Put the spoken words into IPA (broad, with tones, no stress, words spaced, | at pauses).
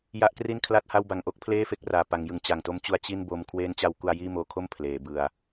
ja˦˥ʔkri˥˩nkʰla˥˩t̚ha˥˩w ba˨˩ŋʔo˥˩k̚ pʰleː˥˩fe˦˥k̚ raː˨˩ pa˩˦ŋjɯ˩˦ŋ t͡ɕa˨˩ŋto˦˥mt͡ɕu˧a̯ t͡ɕi˥˩nbo˧m kʰweː˦˥nt͡ɕa˧wku˧a̯ jiː˥˩moː˧kʰo˥˩m pʰleː˩˦bɯ˧a̯